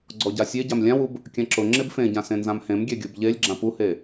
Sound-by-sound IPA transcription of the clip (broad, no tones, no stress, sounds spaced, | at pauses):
ɡ͡ǀ ɔ ɟ a sʲ e ɟ a m lʲ ã w u b | kʲ ã ǁ ʊ ŋ͡ǁ e b f ẽ ɟ ã s ẽ n z ã m h ẽ m ɡʲ ɛ ɡʲ u b ʎ e lʲ ɡ͡ǁ ã p u h e